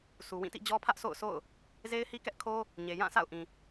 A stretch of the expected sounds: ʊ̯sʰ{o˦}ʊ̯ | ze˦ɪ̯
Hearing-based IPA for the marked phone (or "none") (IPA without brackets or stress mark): o̰˦˨